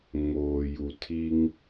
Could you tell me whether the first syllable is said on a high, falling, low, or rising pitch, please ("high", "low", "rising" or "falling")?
low